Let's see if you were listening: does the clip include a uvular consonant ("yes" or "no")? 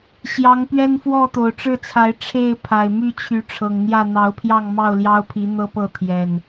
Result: no